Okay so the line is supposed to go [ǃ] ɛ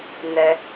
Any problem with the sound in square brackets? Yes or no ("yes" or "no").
yes